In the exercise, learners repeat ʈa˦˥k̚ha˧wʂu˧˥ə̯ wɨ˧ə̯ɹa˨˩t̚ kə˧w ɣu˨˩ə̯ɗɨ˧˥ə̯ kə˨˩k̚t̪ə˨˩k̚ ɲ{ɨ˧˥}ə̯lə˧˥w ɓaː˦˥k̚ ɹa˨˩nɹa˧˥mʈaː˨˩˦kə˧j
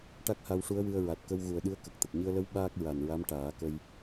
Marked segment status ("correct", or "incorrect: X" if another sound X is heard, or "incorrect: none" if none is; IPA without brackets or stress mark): incorrect: ɨ˧